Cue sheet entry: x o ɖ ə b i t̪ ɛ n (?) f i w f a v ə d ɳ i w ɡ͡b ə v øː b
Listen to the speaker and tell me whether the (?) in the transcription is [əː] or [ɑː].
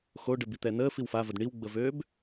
əː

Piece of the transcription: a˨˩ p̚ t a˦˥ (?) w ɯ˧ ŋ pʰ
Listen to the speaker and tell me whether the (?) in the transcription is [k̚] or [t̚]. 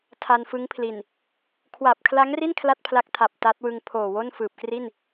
t̚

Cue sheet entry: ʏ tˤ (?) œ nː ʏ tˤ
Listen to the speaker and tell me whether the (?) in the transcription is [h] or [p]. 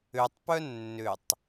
p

